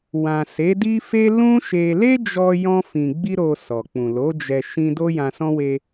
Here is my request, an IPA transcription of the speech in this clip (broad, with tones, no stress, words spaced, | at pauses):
wã˨ se˨˦di˦fe˦ lũ˦ʃe˧ le˦d͡ʒɔ˧ jɔ̃˧fĩ˨ɡ͡bi˧ɾo˨ sɔ˨k͡pũ˨lo˨˦d͡ʒɛ˧ ʃĩ˧ do˦jã˧sɔ̃˦ we˧